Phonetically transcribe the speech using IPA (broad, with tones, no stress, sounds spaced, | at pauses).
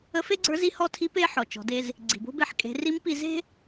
ə˧˥ f e˥ ɡ͡ǀ ə˞˧˥ z i˧˥ h ɔ˧˥ tʰ i˧˥ p e˥ ħ ɔ˩ t͡ʃ ɔ̤˩˧ d e˧ z | ɡ͡ǀ i̤˩ b o̤˥ b e˧˥ ħ kʼ e̤˩˧ r i˧˥ m p i˧ z e̤˥